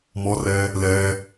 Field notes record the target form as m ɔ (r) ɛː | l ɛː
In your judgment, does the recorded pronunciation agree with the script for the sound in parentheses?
yes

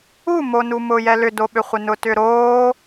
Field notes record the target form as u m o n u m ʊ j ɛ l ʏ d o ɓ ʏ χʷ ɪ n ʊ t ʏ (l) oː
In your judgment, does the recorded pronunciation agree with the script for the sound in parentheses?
no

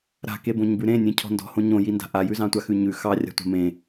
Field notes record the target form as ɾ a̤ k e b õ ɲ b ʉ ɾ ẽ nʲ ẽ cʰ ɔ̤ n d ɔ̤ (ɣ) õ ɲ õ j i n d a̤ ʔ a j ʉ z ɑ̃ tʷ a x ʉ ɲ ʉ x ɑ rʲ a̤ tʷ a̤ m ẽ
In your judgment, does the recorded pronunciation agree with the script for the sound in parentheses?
no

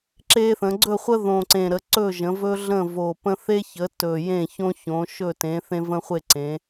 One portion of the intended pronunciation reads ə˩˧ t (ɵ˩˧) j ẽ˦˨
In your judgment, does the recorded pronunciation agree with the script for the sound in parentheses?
no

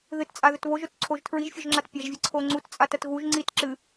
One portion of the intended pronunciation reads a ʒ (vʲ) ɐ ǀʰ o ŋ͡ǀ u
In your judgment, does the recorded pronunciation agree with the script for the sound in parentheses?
yes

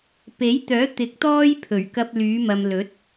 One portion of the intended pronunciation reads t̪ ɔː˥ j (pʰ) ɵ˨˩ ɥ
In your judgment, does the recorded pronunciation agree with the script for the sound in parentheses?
yes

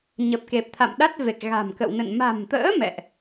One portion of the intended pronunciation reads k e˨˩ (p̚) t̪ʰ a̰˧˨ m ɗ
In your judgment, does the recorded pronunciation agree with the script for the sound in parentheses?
yes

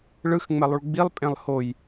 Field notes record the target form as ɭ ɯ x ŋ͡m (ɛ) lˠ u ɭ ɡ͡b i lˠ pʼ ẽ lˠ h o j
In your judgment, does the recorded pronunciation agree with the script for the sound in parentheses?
yes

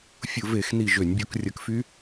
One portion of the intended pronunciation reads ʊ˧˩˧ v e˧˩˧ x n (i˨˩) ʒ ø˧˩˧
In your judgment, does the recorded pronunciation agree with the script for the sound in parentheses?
yes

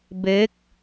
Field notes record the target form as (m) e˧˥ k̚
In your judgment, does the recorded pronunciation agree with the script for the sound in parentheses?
no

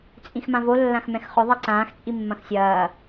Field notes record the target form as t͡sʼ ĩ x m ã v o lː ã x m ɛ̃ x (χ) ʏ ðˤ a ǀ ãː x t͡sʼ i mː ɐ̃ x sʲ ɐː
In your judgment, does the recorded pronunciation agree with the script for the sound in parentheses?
yes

